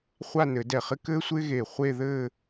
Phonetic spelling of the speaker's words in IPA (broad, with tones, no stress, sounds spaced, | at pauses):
χʷ a˥˧ n ɘ˨˩˦ d ɛ˧˩ χ ɪ˥ k ɘː˥ sʷ ɪː˥ ɣ eː˧˩ χʷ e˥˧ ð ɘː˥˧